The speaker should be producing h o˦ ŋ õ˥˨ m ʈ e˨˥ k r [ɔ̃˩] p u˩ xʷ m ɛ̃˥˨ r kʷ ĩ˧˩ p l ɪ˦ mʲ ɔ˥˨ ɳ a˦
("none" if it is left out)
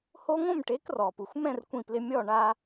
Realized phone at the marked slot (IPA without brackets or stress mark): ɔ˩